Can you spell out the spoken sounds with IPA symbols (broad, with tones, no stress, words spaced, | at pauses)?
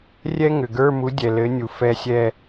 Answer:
rʲɛ˥ŋʏ˩ɡə˞˧˥˧mu˨˥ dʲɛ˩lɘ˨˥ nʲu˩fɛ˦˨ sʲɛ˦˨